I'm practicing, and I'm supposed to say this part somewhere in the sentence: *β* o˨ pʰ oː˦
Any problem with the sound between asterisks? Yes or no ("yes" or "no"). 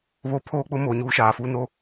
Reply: no